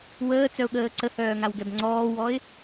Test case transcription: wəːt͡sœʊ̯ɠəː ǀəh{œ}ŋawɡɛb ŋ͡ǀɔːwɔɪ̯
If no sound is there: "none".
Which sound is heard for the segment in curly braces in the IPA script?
œː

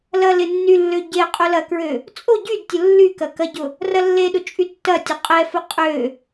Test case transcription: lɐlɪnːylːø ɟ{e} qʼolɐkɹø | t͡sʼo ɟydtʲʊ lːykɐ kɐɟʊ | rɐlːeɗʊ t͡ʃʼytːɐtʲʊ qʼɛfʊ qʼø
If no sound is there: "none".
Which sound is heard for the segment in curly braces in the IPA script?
e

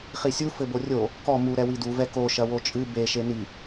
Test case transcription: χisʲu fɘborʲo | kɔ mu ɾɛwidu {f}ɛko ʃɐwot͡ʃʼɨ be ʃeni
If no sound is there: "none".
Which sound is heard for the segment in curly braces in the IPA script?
v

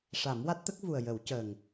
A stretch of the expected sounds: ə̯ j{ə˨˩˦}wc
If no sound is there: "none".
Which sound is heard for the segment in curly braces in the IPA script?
ə˨˩˦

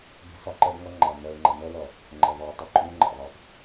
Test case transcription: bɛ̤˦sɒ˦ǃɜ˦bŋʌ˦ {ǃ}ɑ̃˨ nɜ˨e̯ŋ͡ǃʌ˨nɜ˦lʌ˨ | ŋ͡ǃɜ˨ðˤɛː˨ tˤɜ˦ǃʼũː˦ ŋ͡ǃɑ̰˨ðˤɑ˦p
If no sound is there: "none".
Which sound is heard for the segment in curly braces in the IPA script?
ŋ͡ǃ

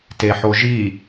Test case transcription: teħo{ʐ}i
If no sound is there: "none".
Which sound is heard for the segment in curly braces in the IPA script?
ʒ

